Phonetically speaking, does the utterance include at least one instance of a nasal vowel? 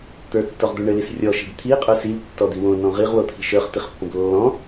yes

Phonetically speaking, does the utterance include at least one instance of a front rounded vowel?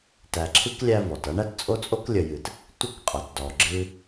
no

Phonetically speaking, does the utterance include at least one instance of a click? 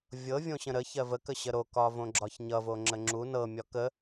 yes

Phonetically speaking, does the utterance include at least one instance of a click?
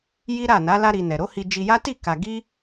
no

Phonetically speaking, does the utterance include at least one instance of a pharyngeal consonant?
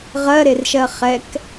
no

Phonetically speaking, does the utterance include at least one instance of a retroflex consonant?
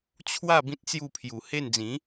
no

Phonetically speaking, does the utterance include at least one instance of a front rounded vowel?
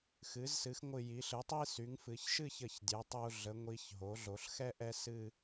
yes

